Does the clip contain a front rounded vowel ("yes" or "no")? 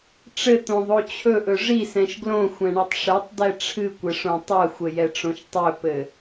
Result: no